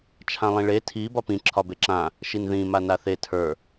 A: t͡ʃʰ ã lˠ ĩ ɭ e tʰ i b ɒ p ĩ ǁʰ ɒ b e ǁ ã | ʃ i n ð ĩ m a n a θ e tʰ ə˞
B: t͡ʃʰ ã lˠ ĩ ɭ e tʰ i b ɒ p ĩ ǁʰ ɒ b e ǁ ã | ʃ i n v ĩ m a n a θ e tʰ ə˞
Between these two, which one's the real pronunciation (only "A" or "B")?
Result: A